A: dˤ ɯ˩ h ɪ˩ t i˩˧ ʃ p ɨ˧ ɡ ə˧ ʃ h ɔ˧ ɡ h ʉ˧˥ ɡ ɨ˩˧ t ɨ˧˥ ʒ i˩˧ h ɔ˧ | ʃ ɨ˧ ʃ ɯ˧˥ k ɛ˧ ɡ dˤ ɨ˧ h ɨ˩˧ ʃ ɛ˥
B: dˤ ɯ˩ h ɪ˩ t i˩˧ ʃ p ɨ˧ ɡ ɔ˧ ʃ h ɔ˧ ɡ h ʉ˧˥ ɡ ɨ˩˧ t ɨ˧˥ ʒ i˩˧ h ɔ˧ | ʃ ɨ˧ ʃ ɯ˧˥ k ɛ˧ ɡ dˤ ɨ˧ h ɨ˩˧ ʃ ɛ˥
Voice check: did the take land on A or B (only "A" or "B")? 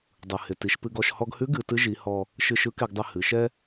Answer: B